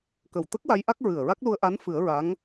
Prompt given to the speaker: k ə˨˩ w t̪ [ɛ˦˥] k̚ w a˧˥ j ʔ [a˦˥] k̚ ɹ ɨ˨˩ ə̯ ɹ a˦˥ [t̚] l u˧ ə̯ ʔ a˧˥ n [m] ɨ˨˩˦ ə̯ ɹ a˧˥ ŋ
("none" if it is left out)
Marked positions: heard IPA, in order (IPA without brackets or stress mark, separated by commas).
ə˦˥, a˦˥, k̚, f